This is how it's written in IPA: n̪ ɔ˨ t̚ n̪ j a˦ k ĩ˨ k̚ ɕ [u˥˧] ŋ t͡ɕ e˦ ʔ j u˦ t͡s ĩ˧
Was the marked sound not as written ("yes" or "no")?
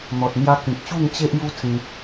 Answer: no